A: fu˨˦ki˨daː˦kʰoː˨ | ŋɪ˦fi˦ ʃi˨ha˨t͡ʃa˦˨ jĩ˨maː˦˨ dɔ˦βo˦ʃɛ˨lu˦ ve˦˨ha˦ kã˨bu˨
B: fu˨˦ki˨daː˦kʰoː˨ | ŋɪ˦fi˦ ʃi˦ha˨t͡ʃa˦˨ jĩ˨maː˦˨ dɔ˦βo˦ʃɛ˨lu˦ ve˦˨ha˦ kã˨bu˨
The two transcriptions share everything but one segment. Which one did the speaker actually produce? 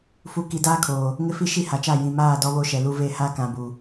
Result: B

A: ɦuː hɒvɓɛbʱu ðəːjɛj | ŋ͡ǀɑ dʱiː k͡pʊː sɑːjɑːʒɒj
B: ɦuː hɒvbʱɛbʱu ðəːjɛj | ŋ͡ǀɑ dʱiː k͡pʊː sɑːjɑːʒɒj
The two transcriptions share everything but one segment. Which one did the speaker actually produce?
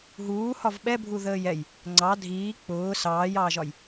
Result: A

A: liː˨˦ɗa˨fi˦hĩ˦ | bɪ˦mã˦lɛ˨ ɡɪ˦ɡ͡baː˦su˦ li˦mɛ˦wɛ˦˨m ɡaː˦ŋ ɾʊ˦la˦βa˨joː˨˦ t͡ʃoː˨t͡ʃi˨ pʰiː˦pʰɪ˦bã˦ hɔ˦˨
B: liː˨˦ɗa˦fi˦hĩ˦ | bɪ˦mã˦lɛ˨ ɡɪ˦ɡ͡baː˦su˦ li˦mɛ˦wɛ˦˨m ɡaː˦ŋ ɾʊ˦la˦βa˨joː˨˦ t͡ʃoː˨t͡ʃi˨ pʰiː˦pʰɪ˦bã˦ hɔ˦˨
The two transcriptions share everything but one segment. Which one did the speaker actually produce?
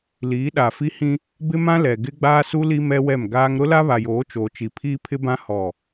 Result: A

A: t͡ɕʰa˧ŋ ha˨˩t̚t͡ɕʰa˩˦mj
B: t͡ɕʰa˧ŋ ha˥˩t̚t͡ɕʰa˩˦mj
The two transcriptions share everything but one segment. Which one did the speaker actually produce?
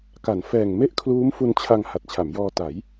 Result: A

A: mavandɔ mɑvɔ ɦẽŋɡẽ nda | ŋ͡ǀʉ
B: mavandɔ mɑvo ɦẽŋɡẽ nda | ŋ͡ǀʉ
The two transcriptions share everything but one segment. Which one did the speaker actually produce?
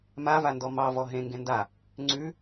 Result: A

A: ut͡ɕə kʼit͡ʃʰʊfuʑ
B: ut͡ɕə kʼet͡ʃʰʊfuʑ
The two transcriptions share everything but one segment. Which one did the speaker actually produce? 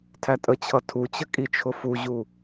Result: A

